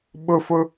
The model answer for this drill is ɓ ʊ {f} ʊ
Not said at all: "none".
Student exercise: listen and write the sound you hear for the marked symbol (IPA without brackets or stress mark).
f